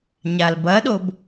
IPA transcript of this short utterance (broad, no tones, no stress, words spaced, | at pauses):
ɲalbɐɗob